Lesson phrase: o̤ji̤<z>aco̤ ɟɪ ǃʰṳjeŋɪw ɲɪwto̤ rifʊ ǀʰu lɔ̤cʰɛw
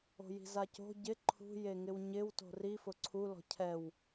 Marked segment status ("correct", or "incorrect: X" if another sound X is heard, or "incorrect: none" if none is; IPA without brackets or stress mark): correct